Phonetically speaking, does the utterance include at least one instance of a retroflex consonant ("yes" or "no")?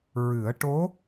yes